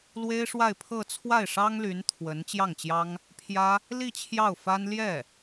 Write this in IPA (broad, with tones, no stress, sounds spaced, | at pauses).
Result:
l w e˥ ɪ̯ ʂ w a˥˧ ɪ̯ pʰ ɤ˥˧ t͡sʰ w a˥˩ ɪ̯ ʂ ɑ˥ ŋ l y˧˥ n t̪ʰ w ə˧˥ n t͡ɕ j ɑ˥˩ ŋ t͡ɕ j ɑ˥ ŋ | pʰ j ä˥ | l i˥˧ t͡ɕʰ j ɑ˥˩ ʊ̯ f a˥ n l j ɛ˥˩